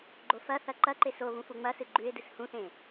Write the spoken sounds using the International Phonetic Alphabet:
ɡ͡ǃ o f ɐ θ ɐ ǃ ɐ ǃ e s o β ũ f u ŋ͡m ɐ s ɨ ɡ͡ǃ ʉ ɪ̯ d ɨ s h ũ θ ẽ

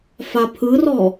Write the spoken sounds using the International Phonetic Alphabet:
f a pʰ ɯ r ɔ

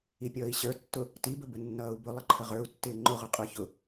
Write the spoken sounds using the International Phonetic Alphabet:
i pʲ ʌː i̯ ɕ ə˞ tː ʊ | t i b ə b ə nː ʌː u̯ b ʊ lˠ ə ǃʰ ə ʁ ə˞ u̯ tː ɪː ŋ͡ǃ ʊ ʁ ʊ qʼ ə˞ ç ʊ

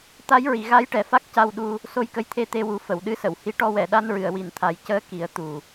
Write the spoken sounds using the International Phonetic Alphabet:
t̪ a˧˥ j ɹ i˨˩˨ ɣ a˧˥ j ʈ ɛ˨˩ f a˦˥ k̚ c a˧ w ɗ u˧ | s o˧ j k ə˧ j t̪ʰ e˧ t̪ e˧ w u˨˩˦ f ə˨˩˨ w ɗ ɨ˧˥ s ə˨˩˨ w h i˧˥ ʈ ɔ˧ w ɛ˨˩˨ ɗ a˧ n ɹ ɨ˨˩˨ ə̯ w i˨˩ n t̪ʰ a˨˩˦ j c əː˧˥ k i˨˩˦ ə̯ t̪ u˨˩

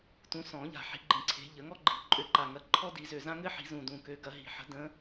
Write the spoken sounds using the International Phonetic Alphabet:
t ũ˨˦ s ɔ̃˨˩˦ ʎ a̤˨˩ ħ i̤˨˦ ɡ͡ǃ ĩ˨˩ ǀʰ e̤˨˦ ʎ ə˨˩˦ ŋ ɔ˥ ɡ͡ǃ i̤˨˩ ǃʼ ø˨˦ ǃ a˨˩ ŋ ɐ˨˦ ǃʰ ɔ˥ d i˨˩˦ z ø˨˩ z ã˥ ŋ ɘ˥ ħ i̤˨˩˦ z ũ˨˩ d ũ˨˩ k ø˨˦ ɡ ɐ˨˩˦ ɦ i̤˨˩ ħ ə̤˨˦ d ə̃˨˦

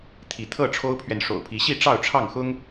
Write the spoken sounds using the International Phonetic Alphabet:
t̪ʰ i˨˦ t̪ʰ ɤ˥˨ ʈ͡ʂʰ o˦ ʊ̯ pʰ ɥ ɛ˨ n ʂ o̰˨˩ ʊ̯ pʰ i˨˦ ɕ i˥˨ ʈ͡ʂ ɑ˥˨ ʊ̯ ʈ͡ʂʰ ɑ˥˨ ŋ x ʊ˦ ŋ

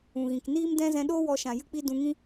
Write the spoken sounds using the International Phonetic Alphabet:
ũ˨ ɣ ĩ˨ k n iː˦ m d ɛ̃˦ z ɛ̃˧ ɗ oː˦ w ɔ˧ ʃ ã˨ j ɨ˦ k͡p i˦ d ũ˧ ŋ ĩ˦

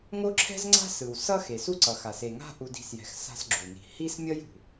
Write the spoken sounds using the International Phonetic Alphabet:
ŋ o˥ ǁʰ ɛ̤˥ z ŋ͡ǀ a̤˥ s ɯ˩ w s ʌ˥ x e˩ s u˦ ǀ ʌ˩ x a˩ s e˩ ŋ a̤˦ ʔ u˨ d i̤˨ s j ɛ̤˩ x s a̤˦ s ɡ͡ǁ u˩ n i̤˨ h i˥ s mʲ ʌ˥ j ṳ˩

